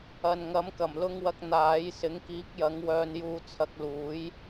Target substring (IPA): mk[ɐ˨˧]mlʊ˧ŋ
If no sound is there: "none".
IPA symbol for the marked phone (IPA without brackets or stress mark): ɐ˨˩